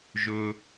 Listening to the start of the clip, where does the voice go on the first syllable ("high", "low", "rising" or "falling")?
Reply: low